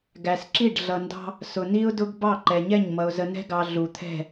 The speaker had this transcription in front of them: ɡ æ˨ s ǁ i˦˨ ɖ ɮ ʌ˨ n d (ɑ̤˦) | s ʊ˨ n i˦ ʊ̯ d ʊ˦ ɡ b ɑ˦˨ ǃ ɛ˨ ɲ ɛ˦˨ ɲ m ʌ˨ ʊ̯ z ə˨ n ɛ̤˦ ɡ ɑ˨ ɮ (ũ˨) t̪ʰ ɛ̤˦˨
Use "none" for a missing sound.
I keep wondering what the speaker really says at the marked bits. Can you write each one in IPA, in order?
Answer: ɑ̤˦, u˨

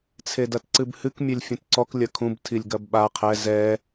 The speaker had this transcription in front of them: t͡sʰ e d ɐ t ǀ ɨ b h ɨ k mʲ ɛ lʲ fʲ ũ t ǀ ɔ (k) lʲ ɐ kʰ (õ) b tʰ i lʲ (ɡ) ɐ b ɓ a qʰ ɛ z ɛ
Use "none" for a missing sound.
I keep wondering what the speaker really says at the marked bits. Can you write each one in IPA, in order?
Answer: k, ũ, ɡ

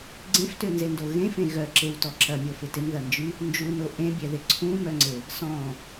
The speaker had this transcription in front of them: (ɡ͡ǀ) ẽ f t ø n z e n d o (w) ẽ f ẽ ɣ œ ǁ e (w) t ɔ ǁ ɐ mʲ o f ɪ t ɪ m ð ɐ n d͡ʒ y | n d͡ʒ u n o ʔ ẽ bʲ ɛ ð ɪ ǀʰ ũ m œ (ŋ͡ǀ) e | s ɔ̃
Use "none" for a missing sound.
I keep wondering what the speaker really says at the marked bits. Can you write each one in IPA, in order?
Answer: ɡ͡ǀ, ɣ, w, ŋ͡ǀ

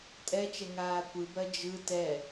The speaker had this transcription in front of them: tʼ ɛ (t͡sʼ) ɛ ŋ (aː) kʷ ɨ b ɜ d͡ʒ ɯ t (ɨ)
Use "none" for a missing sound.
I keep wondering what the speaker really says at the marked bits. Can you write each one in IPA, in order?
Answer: t͡ʃ, aː, ɛ

